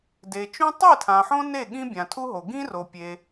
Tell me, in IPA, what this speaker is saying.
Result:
d e˨ t͡ʃ ũ˦ tˤ e˥˩ tʰ ã˨ ħ õ˦ n e˥˩ ɠ ĩ˦ bʲ ã˨ tʰ u˦ ɦ o˨ ɡ ĩ˦ r o˨ pʲ e˨

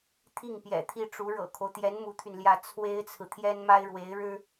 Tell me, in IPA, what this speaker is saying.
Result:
t̪ʰ i˥˩ ŋ p j ɛ̰˨˩ t̪ʰ i˥˩ ʈ͡ʂ u˧˥ ɻ ɤ̰˨˩ kʰ o˦ ʊ̯ t̪ j ɛ˧˥ n m u˧˥ t̪ʰ y˧ n l j ä˥˩ t͡sʰ w e˥ ɪ̯ t͡sʰ ɹ̩˨ t̪ʰ j ɛ˥ n m a˥ ɪ̯ ɻ w e˧˥ ɪ̯ ɻ ɻ̩˥

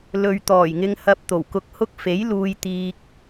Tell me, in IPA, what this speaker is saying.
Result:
l ɵ˨ ɥ t̪ ɔː˨˩ j ŋ ɪ˧ ŋ h ɐ˧ p̚ t̪ o˨˩ w k ʊ˧ k̚ h ʊ˥ k̚ f e˨˥ j l uː˧ j t̪ iː˧ k̚

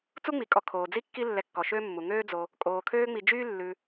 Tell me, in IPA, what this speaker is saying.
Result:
t͡s u˥ ŋ͡m i˩ kʼ ɔ˨ kʰ oː˩ d͡z i˥ kː i˦ lː ɛ˨ kː ɔ˩ ʃ øː˦ mː u˩ ŋ øː˥ d͡z o˨ | kʼ oː˩ kʰ øː˦ ŋ͡m i˨ d͡ʒ yː˥ lː ʉ˨

